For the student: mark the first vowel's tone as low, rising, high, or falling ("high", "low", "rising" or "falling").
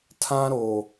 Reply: high